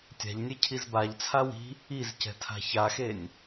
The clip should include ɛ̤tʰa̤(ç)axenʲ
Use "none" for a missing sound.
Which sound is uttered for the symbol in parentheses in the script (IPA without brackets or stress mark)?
ç